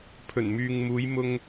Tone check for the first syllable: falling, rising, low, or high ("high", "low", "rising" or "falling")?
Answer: low